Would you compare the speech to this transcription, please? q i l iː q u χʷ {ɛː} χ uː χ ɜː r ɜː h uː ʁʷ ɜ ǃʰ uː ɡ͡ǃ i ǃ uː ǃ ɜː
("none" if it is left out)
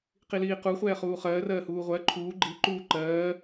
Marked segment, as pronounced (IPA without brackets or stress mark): ɛː